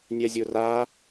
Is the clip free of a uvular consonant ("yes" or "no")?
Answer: yes